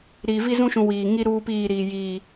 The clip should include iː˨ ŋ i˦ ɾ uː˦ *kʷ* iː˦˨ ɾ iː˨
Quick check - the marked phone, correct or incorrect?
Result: incorrect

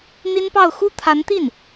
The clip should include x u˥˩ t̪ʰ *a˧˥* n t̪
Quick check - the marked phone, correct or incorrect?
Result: correct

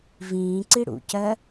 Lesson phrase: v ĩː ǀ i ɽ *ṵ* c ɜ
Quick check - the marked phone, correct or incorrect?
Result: correct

